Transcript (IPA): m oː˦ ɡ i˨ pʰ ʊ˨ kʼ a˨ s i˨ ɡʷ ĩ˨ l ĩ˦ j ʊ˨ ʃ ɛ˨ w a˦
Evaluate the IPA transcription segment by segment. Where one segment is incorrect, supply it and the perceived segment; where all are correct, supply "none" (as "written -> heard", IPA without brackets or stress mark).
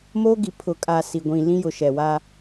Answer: none